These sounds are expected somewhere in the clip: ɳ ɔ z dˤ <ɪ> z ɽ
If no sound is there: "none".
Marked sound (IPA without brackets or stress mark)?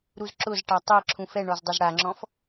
ɪ